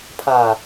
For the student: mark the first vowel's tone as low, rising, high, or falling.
low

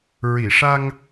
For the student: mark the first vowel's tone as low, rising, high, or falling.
low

